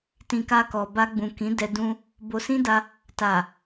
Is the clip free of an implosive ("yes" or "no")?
yes